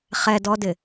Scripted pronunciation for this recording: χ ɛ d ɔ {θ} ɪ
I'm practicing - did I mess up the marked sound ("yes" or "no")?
yes